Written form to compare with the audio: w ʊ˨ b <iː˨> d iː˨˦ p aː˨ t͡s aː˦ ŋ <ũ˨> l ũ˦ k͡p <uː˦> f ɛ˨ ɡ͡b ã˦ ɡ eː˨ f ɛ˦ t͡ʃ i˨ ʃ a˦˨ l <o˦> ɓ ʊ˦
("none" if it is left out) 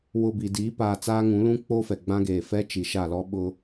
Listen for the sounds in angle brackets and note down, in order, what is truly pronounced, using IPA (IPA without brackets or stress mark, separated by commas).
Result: i˨, ũ˨˦, oː˦, ɔ˦